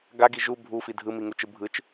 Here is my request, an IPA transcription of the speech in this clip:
ɡ a ɡ i ʒ u bʱ u f i dʱ ɯ m i ŋ u t͡ʃ ɯ bʱ ɯ t͡ʃ

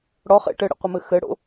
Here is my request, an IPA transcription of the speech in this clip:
ɽ ɔ χ ḛ ʈ ɘ ɽ ə̰ qʷ ə m ɘ x ɘ ɽ o̰

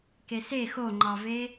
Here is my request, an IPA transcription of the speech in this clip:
k e s e x o ŋ͡ǃ ɑ v e

